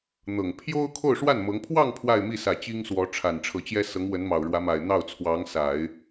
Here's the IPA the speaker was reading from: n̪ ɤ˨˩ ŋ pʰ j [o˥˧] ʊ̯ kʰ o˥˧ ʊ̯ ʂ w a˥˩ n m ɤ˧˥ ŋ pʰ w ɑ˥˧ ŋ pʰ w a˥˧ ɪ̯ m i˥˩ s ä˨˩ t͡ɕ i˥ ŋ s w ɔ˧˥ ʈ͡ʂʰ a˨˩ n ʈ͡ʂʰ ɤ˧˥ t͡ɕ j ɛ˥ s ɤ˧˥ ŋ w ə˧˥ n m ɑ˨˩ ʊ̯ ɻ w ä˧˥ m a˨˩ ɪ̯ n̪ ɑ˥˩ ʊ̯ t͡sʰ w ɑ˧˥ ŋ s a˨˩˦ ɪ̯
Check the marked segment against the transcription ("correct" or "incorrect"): incorrect